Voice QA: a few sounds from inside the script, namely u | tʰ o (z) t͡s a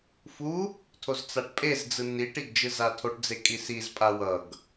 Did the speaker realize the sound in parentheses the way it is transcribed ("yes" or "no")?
yes